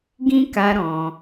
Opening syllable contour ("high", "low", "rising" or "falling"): high